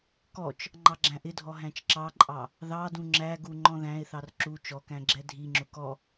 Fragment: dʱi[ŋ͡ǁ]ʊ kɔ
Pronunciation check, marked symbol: correct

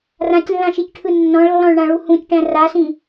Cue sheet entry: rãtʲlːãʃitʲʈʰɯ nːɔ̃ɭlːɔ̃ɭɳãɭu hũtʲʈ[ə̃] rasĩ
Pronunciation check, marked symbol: incorrect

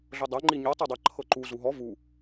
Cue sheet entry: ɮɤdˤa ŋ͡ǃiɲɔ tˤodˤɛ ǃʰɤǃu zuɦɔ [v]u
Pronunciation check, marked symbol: correct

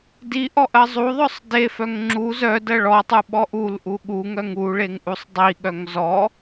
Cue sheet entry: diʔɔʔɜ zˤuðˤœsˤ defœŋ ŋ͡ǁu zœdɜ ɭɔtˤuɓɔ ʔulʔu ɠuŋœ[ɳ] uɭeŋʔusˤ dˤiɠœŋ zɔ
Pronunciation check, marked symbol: incorrect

